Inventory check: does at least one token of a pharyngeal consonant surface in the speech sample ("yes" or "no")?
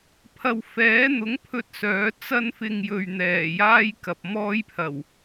no